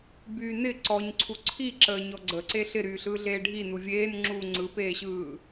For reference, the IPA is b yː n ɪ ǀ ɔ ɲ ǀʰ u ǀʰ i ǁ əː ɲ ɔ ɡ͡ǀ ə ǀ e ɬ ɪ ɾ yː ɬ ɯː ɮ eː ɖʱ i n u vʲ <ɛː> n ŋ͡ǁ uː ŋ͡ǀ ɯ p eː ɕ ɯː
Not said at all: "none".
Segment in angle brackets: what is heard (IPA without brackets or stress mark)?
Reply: eː